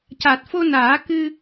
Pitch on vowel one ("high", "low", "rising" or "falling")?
low